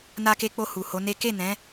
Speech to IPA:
n a˧ k e˧ k͡p o˧ h u˨ h o˨˦ n e˦ k e˦˨ n ɛ̃˨˦

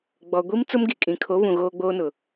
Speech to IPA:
ɡ͡b ɔ˨ ɡʷ i˦ m t͡s ʊ˦ m ɡ i˨ kʼ ĩ˨ kʰ o˨˦ β ũ˨ ɣ oː˦ ɡ͡b oː˦ n ʊ˨

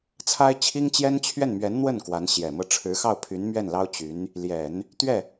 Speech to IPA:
t͡sʰ a˥ ɪ̯ t͡ɕʰ i˥ ŋ t͡ɕ j ɛ˥ n t͡ɕʰ ɥ ɛ˥˩ n m ɥ ɛ˧˥ n n̪ w ə˥˩ n k w a˧˥ n ɕ j ɛ˨˩ m ɤ˧˥ ʈ͡ʂʰ ɻ̩˧˥ x ɑ˥˩ ʊ̯ pʰ y˧˥ n m ɥ ɛ˥˩ n l ɑ˥ ʊ̯ t͡ɕ y˧˥ n | l j ɛ˨˩˦ n | t̪ ɥ ɛ˥˩

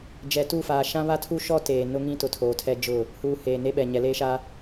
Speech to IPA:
d͡ʒ ɛ˨ t u˦˨ f aː˨ ʃ ã˦ β a˦ tʰ u˦ ʃ ɔ˦ t eː˨ n ʊ˦ ŋ ĩ˦ t ʊ˨ tʰ oː˨ tʰ ɛ˦ d͡ʒ ʊ˦˨ | h uː˨ h eː˨ n e˦ ɓ ɛ˨ ɲ ɛ˨ l eː˦ ʃ a˦

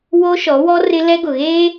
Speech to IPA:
w o˦ ʃ ɔ˨˦ w ɔ˦ r ɪ˦ l ɛ˦ ɡ ʊ˨ ɣ eː˦

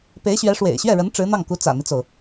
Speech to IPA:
p e˧˥ ɪ̯ ɕ ɥ ɛ˧˥ ʂ w ḛ˨˩ ɪ̯ ɕ ɥ ɛ˥˩ ɻ ə˧˥ n ʈ͡ʂ ɻ̩˧˥ n̪ ɑ˥˩ ŋ k u˧˥ t͡s ä̰˨˩ n̪ i˦ t͡s o˩ ʊ̯

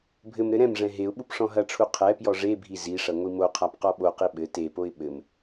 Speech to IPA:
bʱ ɘ m ɾ ɘ ɾ ɛ̃ m ʐ ɛ̃ ɦ e ʊ̯ ɓ u p ʂ ɔ̃ ɦ ɐ ʈ͡ʂʰ u qʰ ɛ p j ɔ ʐ e bʱ i z i ʂ ɐ ŋʷ i m o qʰ a p q ɔ ɓ o q i ɓ ɘ t e p o ɪ̯ ɓ ɘ m

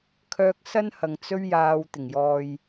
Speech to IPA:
kʰ œː˧ k̚ s ɐ˥ n h ɐ˨ ŋ t͡s ɵ˧ ɥ j aː˨ w t̪ ɪ˨˩ ŋ j ɔː˨ j

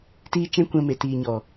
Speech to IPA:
t iː˧ t͡ʃ ɛ̃˦ kʷ ɛ̃˧ m e˨ t iː˨ ɲ ɔ˨

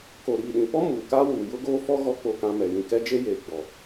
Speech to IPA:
k o˨ ɾ iː˨ ɗ ĩ˨ p ɔ˦ m uː˨ k aː˦ w uː˨ j ʊ˦ ɡ oː˦ f ɔ˦ ɣ ɔ˦ k͡p o˦ k ã˦ m ɛ˨ j ĩ˨ k ɛ˦ d͡ʒ e˦ j eː˨ ɡ͡b ɔ˨

